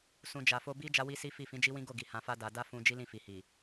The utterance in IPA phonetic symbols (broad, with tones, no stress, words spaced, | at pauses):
sũ˨d͡ʒa˨fo˧ bi˦ d͡ʒa˦wi˦si˦fi˦˨ fĩ˨˦d͡ʒi˦wĩ˦ɡo˦˨ ɡi˨hã˧fa˦ da˧ da˦fũ˧ d͡ʒi˦lĩ˦˨fi˨hi˨